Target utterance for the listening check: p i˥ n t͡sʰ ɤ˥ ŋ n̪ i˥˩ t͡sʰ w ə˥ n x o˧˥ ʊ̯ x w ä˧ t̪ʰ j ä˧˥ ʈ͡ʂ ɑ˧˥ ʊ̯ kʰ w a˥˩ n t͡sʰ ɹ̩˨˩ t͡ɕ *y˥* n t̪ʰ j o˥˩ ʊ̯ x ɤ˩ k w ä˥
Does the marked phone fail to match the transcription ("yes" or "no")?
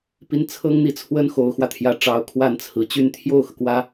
no